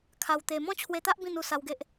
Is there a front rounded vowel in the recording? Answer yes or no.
no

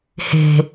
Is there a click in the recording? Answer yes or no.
no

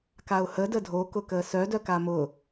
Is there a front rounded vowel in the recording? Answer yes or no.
yes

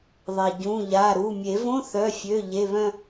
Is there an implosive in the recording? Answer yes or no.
no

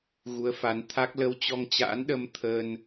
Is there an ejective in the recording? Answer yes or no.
no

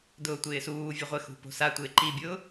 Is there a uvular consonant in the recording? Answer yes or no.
yes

